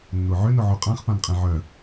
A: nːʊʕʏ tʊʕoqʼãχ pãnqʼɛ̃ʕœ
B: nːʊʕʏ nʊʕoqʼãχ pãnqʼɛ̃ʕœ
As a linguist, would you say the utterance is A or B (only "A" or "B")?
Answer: B